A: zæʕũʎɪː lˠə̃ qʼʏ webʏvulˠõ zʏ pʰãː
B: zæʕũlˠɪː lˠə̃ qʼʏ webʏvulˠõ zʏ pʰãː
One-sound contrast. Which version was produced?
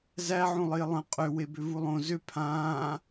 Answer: B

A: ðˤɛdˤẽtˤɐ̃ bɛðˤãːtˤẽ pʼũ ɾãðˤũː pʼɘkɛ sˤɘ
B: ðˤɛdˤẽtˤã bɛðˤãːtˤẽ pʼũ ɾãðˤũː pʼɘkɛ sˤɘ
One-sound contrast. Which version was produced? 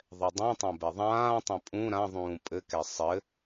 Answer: B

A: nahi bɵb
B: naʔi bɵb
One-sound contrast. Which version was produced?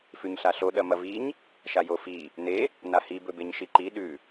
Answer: A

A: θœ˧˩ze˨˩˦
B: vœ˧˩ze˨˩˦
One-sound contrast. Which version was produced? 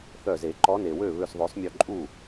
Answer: A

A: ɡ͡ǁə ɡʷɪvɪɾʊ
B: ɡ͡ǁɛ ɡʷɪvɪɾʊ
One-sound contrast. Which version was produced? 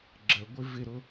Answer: A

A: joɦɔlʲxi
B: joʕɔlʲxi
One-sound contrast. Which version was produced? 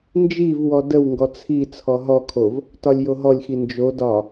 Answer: A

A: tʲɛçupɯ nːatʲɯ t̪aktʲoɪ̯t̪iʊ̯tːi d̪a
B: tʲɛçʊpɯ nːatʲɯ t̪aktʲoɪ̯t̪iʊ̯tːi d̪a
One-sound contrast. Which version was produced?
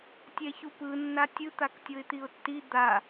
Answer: A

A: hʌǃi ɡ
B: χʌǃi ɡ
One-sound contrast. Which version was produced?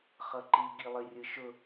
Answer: B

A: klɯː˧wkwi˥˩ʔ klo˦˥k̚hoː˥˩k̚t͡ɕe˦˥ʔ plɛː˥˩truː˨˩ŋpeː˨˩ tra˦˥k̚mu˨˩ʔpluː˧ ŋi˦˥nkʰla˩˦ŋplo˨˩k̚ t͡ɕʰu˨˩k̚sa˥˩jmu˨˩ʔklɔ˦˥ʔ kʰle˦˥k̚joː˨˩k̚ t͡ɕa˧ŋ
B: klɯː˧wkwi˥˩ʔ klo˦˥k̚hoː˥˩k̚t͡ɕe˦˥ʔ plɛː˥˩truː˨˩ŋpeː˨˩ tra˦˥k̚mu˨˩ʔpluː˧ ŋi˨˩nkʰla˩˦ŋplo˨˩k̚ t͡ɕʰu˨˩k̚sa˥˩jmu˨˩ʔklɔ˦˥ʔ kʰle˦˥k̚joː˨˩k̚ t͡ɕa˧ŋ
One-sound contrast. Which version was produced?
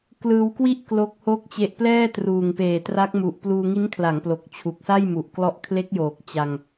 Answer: A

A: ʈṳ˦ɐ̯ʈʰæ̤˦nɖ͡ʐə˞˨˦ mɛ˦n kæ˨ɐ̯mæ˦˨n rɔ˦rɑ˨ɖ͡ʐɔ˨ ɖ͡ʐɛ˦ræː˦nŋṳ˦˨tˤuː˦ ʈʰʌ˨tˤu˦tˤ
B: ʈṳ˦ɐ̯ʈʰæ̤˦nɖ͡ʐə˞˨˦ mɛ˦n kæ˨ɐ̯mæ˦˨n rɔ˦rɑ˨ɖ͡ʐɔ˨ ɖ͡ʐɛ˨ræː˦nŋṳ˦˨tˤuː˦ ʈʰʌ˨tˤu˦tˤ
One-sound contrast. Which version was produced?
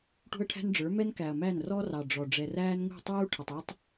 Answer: B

